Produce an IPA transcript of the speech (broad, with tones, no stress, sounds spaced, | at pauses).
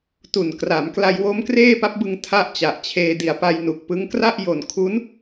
t u˨˩ n k r a˩˦ m k l a˧ j w o˦˥ m k r eː˥˩ p a˦˥ p̚ b ɯ˧ ŋ tʰ a˥˩ ʔ t͡ɕ a˨˩ ʔ t͡ɕʰ eː˧ d i˨˩ a̯ p a˧ j n u˨˩ k̚ p ɯ˦˥ ŋ k r a˥˩ ʔ j o˨˩ n kʰ u˦˥ n